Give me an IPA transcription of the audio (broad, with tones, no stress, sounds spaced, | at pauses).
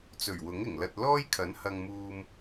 t͡s ɵ˨˩ ɥ w ʊ˨˥ ŋ ɪ˨˩ ŋ l ɐ˧ t̚ l ɔː˥ j kʰ ɐ˨˥ n h ɐ˧ ŋ m uː˧ m